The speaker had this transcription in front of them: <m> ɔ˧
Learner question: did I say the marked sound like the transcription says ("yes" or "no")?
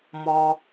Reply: yes